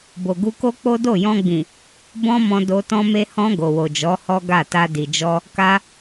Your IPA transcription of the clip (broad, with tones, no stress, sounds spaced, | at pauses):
b o˨ ɡ u˧ k o˦ k͡p o˦ d o˦˨ j ɔ̃˧ ɡ͡b ĩ˨ | b ɔ̃˦ m ɔ̃˧ d o˧ t ɔ̃˧ m e˧ h ɔ̃˧ ɡ o˨ w o˨ d͡ʒ ɔ˨˦ h ɔ˦ ɡ a˦˨ t a˧ d i˨ d͡ʒ ɔ˧ | k a˧